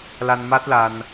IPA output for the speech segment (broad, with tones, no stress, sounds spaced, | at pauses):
l a˧ n m a˦˥ t̚ l a˧ n